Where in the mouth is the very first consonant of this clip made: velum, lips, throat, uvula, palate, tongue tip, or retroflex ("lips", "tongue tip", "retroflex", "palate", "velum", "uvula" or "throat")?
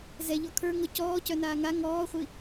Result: tongue tip